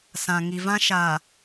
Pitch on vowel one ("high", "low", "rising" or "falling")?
low